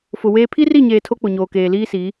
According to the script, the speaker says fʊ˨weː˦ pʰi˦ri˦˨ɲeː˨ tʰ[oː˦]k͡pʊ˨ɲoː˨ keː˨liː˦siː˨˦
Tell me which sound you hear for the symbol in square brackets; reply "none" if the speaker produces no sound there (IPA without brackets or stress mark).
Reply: o˦